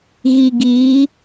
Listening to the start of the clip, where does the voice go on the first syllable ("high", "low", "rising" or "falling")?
low